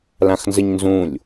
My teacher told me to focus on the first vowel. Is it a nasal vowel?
yes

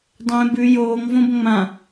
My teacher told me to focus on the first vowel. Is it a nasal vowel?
yes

